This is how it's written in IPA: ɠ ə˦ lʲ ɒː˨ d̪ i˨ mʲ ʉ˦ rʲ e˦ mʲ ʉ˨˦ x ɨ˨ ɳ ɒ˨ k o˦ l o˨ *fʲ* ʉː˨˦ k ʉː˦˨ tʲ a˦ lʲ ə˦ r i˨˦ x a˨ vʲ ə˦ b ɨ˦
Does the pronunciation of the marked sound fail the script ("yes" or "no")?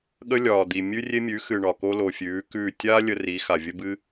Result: no